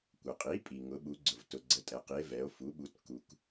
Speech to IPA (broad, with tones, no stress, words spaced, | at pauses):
kʷə˩qʼi˩˥ pʼi˩ŋʊ˩˧ɓu˩˧ɡ͡ǀʊ˩v tʊ˩ɡ͡ǀə˩˧tʼɛ˩qi˩˧e̯ vɛ˩˧o̯fu˩˥ɓu˩˥t ku˩k